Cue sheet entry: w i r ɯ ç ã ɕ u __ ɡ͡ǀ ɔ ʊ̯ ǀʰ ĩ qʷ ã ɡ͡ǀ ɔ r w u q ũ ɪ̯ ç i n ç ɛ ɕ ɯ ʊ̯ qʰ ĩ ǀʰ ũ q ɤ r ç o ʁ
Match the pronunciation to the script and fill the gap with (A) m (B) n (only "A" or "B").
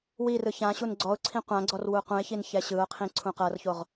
B